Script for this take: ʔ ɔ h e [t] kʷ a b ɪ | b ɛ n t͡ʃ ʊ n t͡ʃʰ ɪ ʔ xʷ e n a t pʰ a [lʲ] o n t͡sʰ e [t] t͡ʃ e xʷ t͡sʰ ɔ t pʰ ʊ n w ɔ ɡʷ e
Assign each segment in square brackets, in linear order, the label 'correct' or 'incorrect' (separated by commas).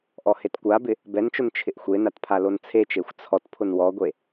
correct, incorrect, incorrect